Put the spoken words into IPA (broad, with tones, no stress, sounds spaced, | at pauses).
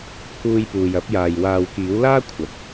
pʰ uː˧ j p uː˨ j ɐ˨˥ p̚ j aː˨ j w aː˨ w k iː˨˥ w l aː˥ kʷʰ ɐ˨ t̚